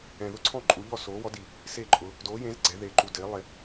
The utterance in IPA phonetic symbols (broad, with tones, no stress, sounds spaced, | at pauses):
ɛ̃˨ ð ʊ˥˨ ǀʰ ɔ̃˥˨ ǃʼ u˨˦ ʎ ɔ˥˨ s oː˨˦ w ɔ˨˦ d i˨ | s e˥˨ ǃʼ ʊ˨˦ | d oː˨˦ j ẽ˨˦ z ɡ͡ǀ ɛ˨˦ ð e˨˦ ǃ u˨ d ɪː˨˦ lˠ e˨